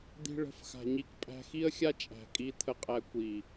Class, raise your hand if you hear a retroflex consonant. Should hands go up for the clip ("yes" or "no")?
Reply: yes